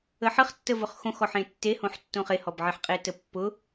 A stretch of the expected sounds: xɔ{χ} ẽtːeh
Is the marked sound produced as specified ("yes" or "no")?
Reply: no